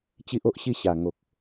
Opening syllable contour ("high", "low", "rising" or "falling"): high